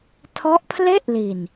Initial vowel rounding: rounded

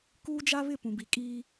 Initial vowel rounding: rounded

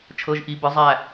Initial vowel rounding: unrounded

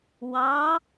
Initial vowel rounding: unrounded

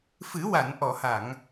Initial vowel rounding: unrounded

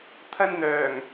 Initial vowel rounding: unrounded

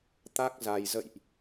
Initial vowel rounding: unrounded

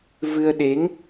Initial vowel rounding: unrounded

